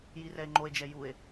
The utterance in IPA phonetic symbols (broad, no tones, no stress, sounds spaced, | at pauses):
j i r ɛ e̯ ŋ͡ǃ o e̯ d͡ʒ ɛ j u e̯